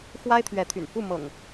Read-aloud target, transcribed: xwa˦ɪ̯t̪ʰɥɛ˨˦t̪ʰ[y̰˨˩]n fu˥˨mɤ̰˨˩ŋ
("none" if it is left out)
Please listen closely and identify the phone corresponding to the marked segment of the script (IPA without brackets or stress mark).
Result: y̰˨˩